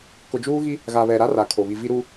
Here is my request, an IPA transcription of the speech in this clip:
k ʊ˨ d͡ʒ uː˦ ɣ i˦ | ɣ a˨ β ɛ˨ ɾ a˦ r a˨ kʰ o˨ β i˨ v i˨ ɾ u˨

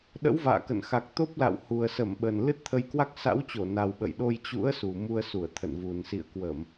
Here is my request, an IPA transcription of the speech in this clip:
ɗ ə̰˧˥ w v a̰ː˧˨ k ə̰˧˨ n x a˨˩ k̚ t̪ o˦˥ p̚ l a̰˧˨ w h u˨˩ ə̯ s ə˧˩ m ɓ ə˨˩ n l ɨ˦˥ t̚ t̪ʰ ə˧ j k w a˦˥ k̚ s a̰˧˥ w t͡ɕ o˧˩ n a˨˩ w ɓ ə̰˧˨ j ɗ o˧ j t͡ɕ ṵ˧˥ ə̯ s u˨˩ m u˧ ə̯ s u˧˩ ə̯ t̪ʰ ə̰˧˨ n v u˨˩ n s ḭ˧˨ ə̯ k w ə˧˩˨ m

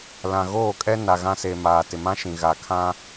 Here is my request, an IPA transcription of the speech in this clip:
l ã˨ ɣ oː˦˨ kʼ ɛ˦ n a˨ ɣ ã˦ s e˨ m aː˨ t ɪ˨ m ã˦ ʃ ĩ˨ ɣ a˨ kʰ ã˦

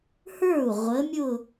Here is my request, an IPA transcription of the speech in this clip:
h ə˞˥˩ u̯ ʁʷ ə˨˦ mʲ ʊ˥˧

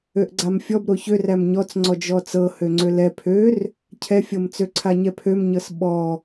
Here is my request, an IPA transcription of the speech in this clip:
ø ʔ ɡ͡ǀ a m fʲ ɔ b ɾ o ç ø r æ m ɲ ɔ t͡s ŋ͡ǀ ɔ d͡ʒ ɔ t͡s ɤ h ø ŋ͡ǀ ø l ɛ pʰ ø r | cʰ ɛ fʲ ɤ m t͡s ø ǀʰ a ɲ ɛ pʰ ø m ɲ ɤ s ɓ ɔ

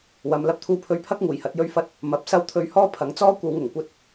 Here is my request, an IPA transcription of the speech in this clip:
w ɐ˨˧ m l ɐ˧ p̚ t̪ʰ uː˧ pʰ ɵ˧ ɥ pʰ ɐ˥ k̚ ŋ uː˨˩ j h ɐ˨˥ t̚ j ɵ˥ ɥ f ɐ˥ t̚ | m ɐ˨˥ p̚ s ɐ˥ w t̪ʰ ɵ˧ ɥ h ɔː˥ pʰ ɐ˨˧ ŋ t͡s ɔː˥ kʷ ɐ˨˧ w ŋ ʊ˨˩ ŋ kʷ ɐ˥ t̚

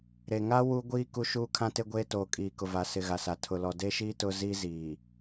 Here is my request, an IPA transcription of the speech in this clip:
ɾ e˨ ŋ a˦ w u˦ ɡʷ iː˦ k u˦ ʃ uː˦ kʰ ã˦ t e˦ ɡʷ eː˦ t oː˨ kʼ iː˨ k ʊ˨ v a˨ s ɪ˨ ɣ a˨ s a˨ tʰ ʊ˨ l ɔ˨ d e˦ ʃ iː˦ t ʊ˦ z i˦ z iː˨

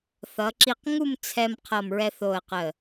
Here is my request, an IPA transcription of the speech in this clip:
θ ʌ˩˧ ǁ i˧˩ q ŋ u˥˨ m t͡sʰ ɛ˧ m qʰ ʌ˧˩ m ɹ ɛ˧ θ o˧˩ ə̯ q ə˧˩

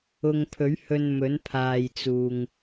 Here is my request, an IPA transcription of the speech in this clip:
ʊ˨ ŋ pʰ ɵ˨˥ ɥ h ɵ˧ n m ɵ˨˥ n pʰ aː˨ j t͡s uː˨ ŋ

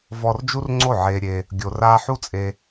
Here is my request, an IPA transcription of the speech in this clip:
v ɔ˧ r d͡ʒ u˦ r ŋ͡ǀ o˦˨ ʕ eː˧ ɾʲ e˧ | ɡʲ o˧ r aː˦ ħ u˦ t͡sʼ e˧

